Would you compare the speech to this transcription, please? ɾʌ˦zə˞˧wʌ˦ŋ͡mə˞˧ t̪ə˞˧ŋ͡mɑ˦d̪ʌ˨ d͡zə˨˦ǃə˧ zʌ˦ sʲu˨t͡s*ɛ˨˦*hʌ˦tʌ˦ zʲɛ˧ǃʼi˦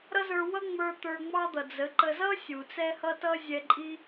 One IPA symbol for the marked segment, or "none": ɛ˦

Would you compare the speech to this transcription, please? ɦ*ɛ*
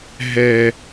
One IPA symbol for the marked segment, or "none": ɛ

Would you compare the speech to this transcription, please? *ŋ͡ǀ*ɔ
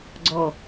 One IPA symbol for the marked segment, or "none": ɡ͡ǀ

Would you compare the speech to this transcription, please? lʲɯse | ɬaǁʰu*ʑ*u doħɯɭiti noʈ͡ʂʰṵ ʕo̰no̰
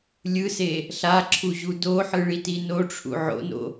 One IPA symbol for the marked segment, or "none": ʑ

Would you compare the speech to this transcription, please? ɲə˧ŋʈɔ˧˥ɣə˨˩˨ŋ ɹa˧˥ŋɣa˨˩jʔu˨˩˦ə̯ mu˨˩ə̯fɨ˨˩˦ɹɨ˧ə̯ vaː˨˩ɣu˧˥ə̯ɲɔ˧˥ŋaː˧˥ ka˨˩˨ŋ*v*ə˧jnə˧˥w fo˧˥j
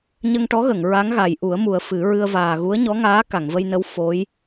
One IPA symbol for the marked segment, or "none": v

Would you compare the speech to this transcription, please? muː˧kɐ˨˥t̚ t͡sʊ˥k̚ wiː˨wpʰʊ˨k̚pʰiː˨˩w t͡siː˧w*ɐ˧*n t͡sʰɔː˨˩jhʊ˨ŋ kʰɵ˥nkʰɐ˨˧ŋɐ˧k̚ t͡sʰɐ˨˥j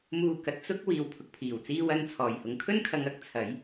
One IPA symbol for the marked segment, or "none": ɐ˧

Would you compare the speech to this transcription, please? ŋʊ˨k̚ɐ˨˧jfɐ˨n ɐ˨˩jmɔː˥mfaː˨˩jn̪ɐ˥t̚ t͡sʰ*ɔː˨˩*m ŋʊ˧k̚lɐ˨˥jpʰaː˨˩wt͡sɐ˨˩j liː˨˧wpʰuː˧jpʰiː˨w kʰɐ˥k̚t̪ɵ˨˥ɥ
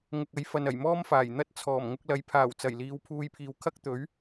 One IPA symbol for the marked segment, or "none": ɔː˨˩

